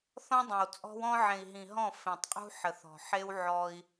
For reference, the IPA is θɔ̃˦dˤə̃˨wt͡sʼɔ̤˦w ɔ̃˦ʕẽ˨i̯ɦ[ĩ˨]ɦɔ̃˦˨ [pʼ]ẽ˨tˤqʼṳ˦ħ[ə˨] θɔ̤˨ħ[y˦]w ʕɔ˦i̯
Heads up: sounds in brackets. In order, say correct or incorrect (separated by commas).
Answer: correct, incorrect, correct, incorrect